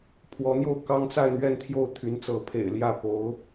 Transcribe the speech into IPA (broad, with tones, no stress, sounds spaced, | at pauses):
pʰ w ɔ˧˥ n̪ j o˥˩ ʊ̯ k ɑ˥ ŋ t͡s a˥˧ ɪ̯ n̪ ɥ ɛ˥˧ n t̪ʰ j o˥˩ ʊ̯ t̪ʰ y˧˥ n t͡s ɤ˧˥ pʰ ḛ˨˩ ɪ̯ l j ä˥˩ p o˧˥ ʊ̯